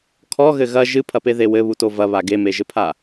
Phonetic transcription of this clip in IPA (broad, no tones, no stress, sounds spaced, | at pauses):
kʰ ɔ ɣ ɘ ɣ ɐ ʒ ɨ pʰ ɐ p e ð e w ɘ β u t o v ɐ β a ɡ e m e ʒ ɘ pʰ a